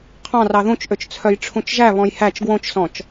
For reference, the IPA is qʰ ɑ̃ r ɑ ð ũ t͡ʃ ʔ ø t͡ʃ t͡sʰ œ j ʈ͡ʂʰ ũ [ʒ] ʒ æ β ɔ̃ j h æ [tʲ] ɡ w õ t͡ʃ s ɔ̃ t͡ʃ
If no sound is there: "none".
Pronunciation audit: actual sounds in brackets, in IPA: t͡ʃ, t͡ʃ

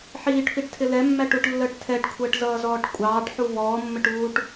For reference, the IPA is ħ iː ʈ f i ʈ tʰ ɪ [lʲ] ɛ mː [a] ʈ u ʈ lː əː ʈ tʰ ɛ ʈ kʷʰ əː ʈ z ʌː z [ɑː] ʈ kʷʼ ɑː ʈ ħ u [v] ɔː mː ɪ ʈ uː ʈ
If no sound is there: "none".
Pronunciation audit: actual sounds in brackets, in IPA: l, æ, ɔː, v

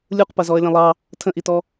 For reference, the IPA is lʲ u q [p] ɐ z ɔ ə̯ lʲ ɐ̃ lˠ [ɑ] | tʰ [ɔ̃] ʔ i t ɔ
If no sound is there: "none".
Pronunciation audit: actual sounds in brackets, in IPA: p, ɑ, ə̃

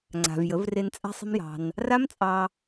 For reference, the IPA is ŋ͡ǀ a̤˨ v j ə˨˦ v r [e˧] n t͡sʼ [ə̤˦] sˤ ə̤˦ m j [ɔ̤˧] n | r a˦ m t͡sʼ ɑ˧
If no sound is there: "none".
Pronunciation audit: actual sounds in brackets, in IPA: e˧, a̤˦, ɑ̤˧

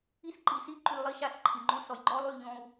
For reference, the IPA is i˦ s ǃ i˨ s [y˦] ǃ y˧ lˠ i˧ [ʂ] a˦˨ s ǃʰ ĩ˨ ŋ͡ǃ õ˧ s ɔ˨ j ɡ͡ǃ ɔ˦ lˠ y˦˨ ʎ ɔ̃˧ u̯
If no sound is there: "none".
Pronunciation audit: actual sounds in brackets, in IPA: i˦, ʃ

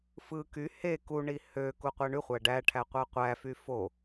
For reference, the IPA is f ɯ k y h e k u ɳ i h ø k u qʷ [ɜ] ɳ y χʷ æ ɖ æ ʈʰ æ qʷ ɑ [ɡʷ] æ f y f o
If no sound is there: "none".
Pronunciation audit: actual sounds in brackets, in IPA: æ, qʷ

